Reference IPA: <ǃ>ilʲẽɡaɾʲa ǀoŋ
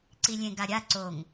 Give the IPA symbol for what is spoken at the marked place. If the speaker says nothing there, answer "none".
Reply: ǀ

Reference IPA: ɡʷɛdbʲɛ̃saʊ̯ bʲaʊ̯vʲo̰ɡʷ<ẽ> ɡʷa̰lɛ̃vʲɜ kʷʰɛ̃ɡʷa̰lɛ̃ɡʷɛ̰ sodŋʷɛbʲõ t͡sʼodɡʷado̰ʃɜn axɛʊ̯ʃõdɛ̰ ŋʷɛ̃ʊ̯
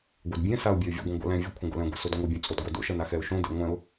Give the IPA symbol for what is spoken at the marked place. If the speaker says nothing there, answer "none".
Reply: ɛ̃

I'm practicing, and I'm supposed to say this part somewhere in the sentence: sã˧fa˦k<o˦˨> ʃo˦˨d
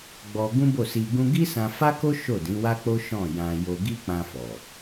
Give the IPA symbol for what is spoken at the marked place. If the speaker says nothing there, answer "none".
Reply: o˦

